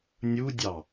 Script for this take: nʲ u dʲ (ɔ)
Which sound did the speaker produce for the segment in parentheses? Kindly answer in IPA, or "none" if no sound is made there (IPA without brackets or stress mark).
ɑ